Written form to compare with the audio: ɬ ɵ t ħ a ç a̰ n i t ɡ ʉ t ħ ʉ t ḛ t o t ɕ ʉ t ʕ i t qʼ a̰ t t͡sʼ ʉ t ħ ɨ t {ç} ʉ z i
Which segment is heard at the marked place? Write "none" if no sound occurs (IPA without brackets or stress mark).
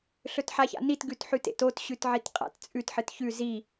ç